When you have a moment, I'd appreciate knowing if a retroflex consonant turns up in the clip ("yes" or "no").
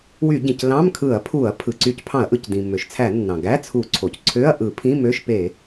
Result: no